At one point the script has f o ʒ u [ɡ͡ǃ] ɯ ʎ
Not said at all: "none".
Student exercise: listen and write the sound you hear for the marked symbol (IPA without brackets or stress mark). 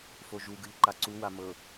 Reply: ɡ